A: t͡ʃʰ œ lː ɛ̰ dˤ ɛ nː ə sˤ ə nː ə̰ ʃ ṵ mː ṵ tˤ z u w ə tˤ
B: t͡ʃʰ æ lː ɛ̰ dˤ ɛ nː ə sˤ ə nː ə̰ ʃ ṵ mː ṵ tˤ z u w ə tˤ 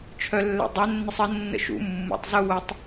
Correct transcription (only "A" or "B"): A